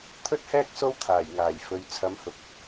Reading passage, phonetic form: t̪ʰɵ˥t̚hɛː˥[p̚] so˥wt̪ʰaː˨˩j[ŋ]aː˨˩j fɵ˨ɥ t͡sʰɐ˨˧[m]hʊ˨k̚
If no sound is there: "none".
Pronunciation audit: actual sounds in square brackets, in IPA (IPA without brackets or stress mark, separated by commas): k̚, ŋ, m